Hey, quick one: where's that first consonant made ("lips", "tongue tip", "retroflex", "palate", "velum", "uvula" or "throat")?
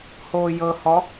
throat